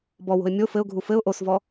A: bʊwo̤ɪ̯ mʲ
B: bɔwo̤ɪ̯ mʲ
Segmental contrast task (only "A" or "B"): B